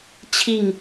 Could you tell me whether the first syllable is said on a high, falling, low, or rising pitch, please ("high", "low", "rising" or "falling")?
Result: falling